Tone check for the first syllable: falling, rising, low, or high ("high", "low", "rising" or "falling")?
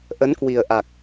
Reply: rising